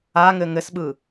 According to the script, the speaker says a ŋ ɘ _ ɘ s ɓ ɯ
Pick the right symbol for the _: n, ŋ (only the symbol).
ŋ